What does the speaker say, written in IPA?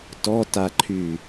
t ɔ t a ǃʰ y

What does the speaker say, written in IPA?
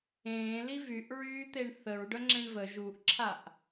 ẽː l i v y ʔ ɹ yː t̪ e ɳ θ ə ɹ ɖ œ ŋ͡ǁ ẽ ɳ v ə ʒ u ʔ ǁʰ a ʔ

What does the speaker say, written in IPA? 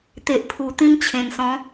t̪ e˨ ʔ pʰ u˨˩ t̪ ĩ˧ m t͡ɕʰ ẽ˨˩ n s ɔ̃˨˦

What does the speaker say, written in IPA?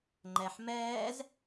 ŋ͡ǃ ɛ ħ m ɛː z

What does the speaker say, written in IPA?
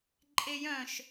ǃʼ e j œ̃ ʃ

